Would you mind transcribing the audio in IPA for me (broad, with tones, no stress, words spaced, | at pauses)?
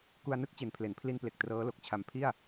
ku˧a̯nɯ˥˩k̚ t͡ɕe˨˩npʰle˩˦npʰli˧nple˨˩k̚ trɤː˦˥lo˨˩k̚t͡ɕʰa˧m pʰi˥˩a̯